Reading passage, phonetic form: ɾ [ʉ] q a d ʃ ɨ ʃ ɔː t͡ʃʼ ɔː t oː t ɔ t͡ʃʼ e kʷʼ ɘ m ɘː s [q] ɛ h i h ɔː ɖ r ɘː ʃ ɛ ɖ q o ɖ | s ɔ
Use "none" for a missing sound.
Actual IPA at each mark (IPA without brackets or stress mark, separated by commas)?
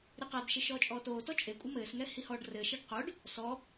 ɨ, ŋ